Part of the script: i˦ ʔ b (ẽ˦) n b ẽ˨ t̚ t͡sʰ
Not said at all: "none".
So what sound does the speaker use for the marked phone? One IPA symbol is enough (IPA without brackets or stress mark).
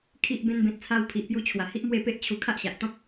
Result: ẽ˧